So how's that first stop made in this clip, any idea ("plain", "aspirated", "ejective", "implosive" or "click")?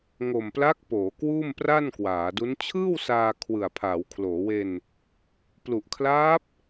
plain